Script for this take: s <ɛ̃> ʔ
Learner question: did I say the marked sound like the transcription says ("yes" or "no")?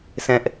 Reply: yes